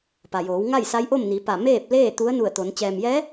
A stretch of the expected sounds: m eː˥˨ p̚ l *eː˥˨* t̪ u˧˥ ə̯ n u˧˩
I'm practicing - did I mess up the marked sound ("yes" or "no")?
no